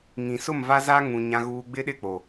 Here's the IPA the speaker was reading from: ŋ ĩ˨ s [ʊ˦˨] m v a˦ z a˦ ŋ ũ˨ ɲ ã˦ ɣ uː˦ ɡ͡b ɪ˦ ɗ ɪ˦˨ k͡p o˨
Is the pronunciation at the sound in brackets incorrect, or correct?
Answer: correct